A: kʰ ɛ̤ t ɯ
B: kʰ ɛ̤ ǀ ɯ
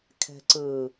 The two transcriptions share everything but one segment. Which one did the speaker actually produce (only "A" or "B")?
B